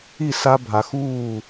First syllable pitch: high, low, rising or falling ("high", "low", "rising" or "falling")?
falling